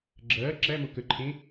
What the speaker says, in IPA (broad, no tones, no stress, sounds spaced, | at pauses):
ɡ͡ǁ ɐː ǁ æ m o k ə ǃʰ ẽ